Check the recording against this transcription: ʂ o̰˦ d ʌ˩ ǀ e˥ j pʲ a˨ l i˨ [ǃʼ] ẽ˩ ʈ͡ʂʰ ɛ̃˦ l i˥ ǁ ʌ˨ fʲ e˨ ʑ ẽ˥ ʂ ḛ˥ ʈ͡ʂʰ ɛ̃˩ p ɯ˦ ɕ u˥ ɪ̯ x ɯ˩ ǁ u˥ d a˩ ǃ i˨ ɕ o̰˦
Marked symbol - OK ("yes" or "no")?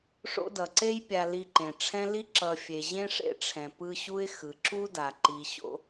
no